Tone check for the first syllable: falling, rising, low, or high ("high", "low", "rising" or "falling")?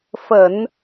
low